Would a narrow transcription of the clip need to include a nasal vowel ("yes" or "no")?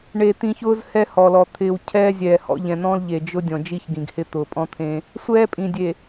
yes